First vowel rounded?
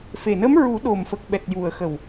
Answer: no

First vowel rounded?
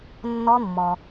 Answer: yes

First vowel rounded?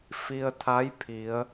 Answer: no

